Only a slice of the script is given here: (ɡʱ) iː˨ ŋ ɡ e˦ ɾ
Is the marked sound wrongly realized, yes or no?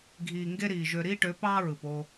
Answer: no